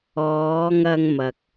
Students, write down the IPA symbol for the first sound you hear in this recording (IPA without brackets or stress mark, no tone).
ɔː